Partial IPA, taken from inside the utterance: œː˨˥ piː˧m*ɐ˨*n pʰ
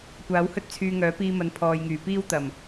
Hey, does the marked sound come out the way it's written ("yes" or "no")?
yes